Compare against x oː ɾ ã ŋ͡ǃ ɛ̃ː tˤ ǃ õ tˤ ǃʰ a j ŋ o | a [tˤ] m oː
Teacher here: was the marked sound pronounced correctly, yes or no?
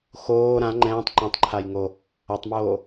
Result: yes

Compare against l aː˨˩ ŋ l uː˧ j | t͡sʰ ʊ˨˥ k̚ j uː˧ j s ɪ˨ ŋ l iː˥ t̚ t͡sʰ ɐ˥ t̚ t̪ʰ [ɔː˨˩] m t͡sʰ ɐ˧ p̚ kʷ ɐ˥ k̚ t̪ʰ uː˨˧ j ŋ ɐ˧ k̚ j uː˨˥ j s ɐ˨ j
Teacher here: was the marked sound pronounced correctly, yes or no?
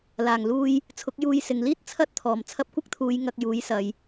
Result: yes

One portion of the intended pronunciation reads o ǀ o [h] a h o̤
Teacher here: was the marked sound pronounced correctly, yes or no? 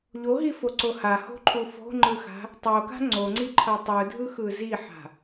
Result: yes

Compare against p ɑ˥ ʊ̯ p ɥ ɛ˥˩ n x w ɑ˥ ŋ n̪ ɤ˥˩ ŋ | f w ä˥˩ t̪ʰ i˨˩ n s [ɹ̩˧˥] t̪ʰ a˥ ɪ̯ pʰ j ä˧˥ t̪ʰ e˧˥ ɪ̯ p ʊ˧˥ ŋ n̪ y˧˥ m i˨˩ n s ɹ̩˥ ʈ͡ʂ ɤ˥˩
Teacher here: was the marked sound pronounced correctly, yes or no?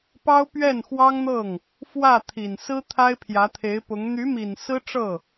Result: no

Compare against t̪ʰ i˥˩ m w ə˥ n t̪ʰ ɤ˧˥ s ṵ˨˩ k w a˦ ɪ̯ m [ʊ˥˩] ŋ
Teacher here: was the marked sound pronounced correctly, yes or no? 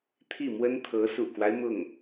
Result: yes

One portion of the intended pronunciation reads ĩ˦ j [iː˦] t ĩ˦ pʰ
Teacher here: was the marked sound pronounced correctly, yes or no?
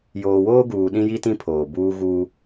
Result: no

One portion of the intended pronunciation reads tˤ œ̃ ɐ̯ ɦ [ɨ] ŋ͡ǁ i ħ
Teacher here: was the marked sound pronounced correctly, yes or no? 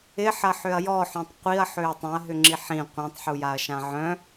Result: no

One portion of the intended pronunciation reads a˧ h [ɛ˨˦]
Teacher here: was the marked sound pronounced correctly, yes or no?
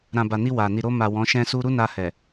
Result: no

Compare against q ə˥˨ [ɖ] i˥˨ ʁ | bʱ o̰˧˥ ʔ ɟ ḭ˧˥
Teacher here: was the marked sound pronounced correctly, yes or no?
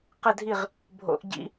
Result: no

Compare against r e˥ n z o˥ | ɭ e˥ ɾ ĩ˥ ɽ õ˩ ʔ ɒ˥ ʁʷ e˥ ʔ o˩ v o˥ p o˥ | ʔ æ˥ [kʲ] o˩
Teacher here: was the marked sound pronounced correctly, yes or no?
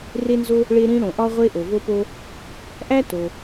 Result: no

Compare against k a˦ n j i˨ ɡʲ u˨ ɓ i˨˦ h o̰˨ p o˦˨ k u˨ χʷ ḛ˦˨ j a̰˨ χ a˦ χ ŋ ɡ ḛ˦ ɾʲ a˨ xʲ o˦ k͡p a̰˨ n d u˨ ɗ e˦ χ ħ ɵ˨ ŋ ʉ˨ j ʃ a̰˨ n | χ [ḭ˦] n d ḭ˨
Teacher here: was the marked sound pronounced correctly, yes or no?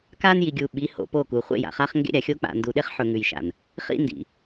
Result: yes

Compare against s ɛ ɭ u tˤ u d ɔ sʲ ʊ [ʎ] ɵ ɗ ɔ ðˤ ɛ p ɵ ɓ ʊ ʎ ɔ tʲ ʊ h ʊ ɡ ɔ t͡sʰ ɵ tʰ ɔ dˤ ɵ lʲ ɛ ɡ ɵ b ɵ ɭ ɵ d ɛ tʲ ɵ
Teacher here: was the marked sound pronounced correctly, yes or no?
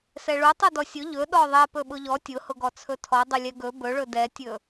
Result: yes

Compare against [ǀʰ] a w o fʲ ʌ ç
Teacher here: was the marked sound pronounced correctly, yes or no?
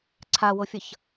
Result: yes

